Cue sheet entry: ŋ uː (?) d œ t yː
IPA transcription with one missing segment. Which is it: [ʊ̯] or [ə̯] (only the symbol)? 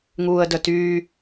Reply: ə̯